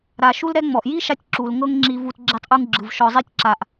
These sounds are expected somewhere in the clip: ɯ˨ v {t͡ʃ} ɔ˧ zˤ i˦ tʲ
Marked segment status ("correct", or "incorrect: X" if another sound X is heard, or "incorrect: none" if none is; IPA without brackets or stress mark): incorrect: ʃ